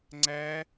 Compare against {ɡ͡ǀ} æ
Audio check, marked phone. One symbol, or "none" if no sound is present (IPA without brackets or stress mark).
ŋ͡ǀ